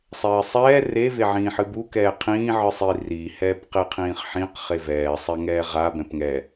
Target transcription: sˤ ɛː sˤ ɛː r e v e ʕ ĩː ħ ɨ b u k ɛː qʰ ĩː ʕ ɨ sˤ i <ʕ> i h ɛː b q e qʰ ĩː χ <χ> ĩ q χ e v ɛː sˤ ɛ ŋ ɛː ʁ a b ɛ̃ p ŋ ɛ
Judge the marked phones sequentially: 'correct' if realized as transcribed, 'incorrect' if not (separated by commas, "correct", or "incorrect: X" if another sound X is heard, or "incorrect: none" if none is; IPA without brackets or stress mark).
incorrect: r, incorrect: ħ